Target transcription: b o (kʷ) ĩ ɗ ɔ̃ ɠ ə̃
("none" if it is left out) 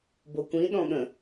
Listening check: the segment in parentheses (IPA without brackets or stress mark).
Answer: kʷ